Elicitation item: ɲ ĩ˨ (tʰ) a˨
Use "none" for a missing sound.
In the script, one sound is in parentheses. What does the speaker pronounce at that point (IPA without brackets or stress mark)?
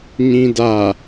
d